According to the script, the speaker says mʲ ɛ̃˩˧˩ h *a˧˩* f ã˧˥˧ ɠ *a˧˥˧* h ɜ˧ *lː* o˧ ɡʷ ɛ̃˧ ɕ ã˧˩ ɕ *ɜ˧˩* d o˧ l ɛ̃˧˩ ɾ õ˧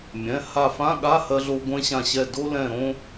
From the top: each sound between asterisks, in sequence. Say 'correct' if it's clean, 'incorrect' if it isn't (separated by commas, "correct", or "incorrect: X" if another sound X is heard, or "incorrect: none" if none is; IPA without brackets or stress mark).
correct, correct, incorrect: ɮ, incorrect: ɛ˧˩